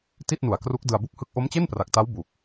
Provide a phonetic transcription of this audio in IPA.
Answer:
ti˥˩t̚nu˨˩a̯kru˦˥k̚ dɯ˧a̯bu˥˩k̚hɯ˥˩k̚ ʔo˦˥mt͡ɕe˥˩npra˨˩k̚ta˦˥w bu˨˩k̚

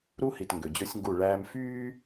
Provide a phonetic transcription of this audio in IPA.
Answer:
ɾu˦hi˨t ŋɡø˨d͡ʑɵ˦sʲŋɡu˦˨ɭæː˦m fyː˦

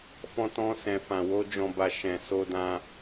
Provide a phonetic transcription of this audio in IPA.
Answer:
fɔ̃˧tɔ̃˧ sɛ̃˨fã˨wo˧ d͡ʒɔ̃˧ba˧ ʃɛ̃˨so˧ dã˧

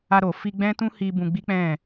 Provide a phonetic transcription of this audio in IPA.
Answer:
a˧ɾo˨ fi˧ɡ͡bɛ̃˦tũ˦hi˧ bũ˧ɡ͡bi˦k͡pɛ̃˦˨

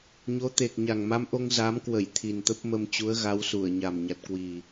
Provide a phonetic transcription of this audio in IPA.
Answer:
ɲo˨˦t̪e˨˩k̚ ɲa˨˩ŋma˧mʔo˧ŋ za˨˦mkwə˧˩j t̪ʰi˨˩nt̪ə˦˥p̚mə˧m t͡ɕu˨˦ə̯ɣa˨˦wsu˧˩ə̯ɲa˨˩m ɲa˨˩t̚kwi˨˩

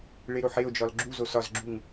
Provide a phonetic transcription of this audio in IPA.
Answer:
ɭeɾoħeo̯d͡ʒɒl ɡ͡ǁuzo sɒzɡ͡ǁuŋ

